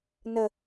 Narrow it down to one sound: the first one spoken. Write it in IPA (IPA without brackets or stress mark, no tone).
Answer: n